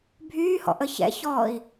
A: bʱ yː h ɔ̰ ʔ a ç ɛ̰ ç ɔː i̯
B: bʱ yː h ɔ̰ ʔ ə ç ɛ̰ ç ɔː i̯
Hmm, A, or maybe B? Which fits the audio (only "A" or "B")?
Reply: B